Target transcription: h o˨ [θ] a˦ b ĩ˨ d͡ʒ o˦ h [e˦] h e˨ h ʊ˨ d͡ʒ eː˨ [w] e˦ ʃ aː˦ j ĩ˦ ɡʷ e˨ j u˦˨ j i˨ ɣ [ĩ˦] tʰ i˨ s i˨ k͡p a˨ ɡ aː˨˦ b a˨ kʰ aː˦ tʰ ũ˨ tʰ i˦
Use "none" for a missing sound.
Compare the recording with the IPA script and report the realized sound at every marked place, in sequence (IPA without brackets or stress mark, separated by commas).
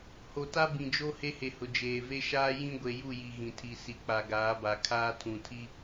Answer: t, e˦, v, ĩ˨